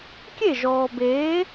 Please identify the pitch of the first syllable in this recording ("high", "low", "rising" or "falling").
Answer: falling